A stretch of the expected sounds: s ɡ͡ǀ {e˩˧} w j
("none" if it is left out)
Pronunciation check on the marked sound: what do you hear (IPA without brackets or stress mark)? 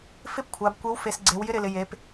e˩˧